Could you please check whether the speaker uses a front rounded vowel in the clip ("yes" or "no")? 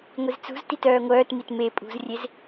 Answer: yes